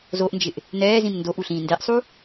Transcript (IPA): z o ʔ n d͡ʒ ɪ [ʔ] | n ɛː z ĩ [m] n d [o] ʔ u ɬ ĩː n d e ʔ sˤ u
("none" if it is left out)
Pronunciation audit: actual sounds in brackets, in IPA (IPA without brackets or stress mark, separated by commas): ʔ, m, o